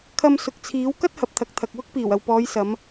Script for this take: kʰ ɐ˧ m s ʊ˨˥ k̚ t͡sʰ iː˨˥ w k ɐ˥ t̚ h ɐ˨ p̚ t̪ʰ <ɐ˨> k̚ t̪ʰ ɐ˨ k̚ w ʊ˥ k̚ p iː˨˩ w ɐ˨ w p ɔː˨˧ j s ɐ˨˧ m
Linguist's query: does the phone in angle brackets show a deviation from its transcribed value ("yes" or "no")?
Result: no